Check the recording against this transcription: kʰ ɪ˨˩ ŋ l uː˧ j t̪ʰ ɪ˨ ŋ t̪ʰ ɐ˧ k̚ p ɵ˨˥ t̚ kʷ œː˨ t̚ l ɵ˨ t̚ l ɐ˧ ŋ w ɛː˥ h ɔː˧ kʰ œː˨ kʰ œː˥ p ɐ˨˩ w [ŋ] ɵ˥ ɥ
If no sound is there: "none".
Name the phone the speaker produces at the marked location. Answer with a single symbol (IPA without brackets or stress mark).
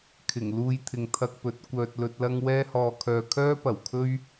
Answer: kʰ